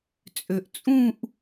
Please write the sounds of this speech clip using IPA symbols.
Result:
t͡sʼøʔt͡sʼũʔ

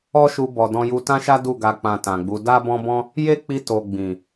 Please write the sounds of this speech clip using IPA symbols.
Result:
ɔ˦ʃu˧bɔ˨ dɔ̃˧ju˧ tã˦ʃa˦ du˦˨ɡa˧ k͡pã˧tã˨ɡ͡bu˨˦ da˦ bɔ̃˦bɔ̃˦ | je˦k͡pi˧ to˨ ɡ͡bĩ˨

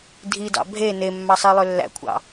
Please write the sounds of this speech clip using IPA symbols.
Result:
dʱidɑ̰ bʱe nemːɑsˤilˠø lːæ̰kʷʰɑ̰

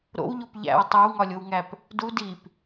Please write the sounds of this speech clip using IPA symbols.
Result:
ɾo̰wʎop ʎæ̰w tˤæwŋɒlʲowŋæp | du dip

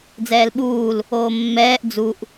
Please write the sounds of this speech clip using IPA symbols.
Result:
d͡zɛːlɓuːl | oːmːɛːʔ d͡zuʔ

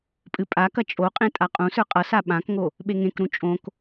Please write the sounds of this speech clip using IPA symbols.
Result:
pʼɨpʼakɐ t͡ʃʼoqʼẽ tʼaqʼũsə˞ qʼʌsa ɓãkŋo | ɓeŋẽkɾũ t͡ʃʼõk

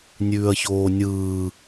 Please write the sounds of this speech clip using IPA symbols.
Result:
nʲʉːɐ̯çoːnʲɯː

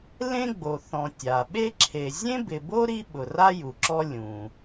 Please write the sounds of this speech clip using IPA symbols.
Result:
lẽ˥ɡ͡bo˨ θɔ̃˨tʲa˩ɓe˦ǁʰe˨ zʲẽ˥bɪ˨bo˥ɾi˦ ɓʊ˨ra˥ ju˩ǁɔ˦ lʲũ˩

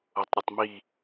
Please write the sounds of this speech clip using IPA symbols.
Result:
otˤɾʲutˤmi

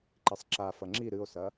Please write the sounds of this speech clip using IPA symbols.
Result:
ǃisˤǁa fɐŋ͡ǁi ɾɨo̯sɐ

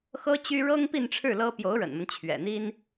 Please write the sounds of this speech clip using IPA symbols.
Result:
xɤ˥t͡ɕy˥ ɻɤ˥ŋpi˥˧nʈ͡ʂʰɻ̩˥˩ lɤ˥ pjo˧˥ʊ̯ɻə̰˨˩nmə˦n t͡ɕʰɥɛ̰˨˩n̪i˥n

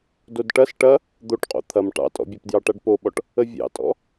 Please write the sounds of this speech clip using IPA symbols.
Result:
dodʈɐs ʈɐ | d̪oʈqʼo̰ t̪ʰɐm ʈɑ̰tʼɔ̰bʲapdjɑ ʈaɖpoɓɔʈ | əvʲɑ̰tʼɔ̰

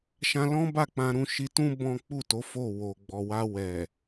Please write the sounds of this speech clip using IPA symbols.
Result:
ʃã˦ lɔ̃˦ba˦˨k͡pã˧ɾũ˧ ʃi˧tũ˦ bɔ̃˦ k͡pu˦˨to˨˦ fo˦˨ wo˨ ɡ͡bɔ˨wa˧ wɛ˨

